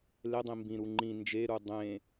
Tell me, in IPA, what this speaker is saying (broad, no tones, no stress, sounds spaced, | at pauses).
l e dˤ ĩ m b ĩ ɾ u ŋ͡ǃ ĩ n d͡ʒ e ɾ u dˤ ẽ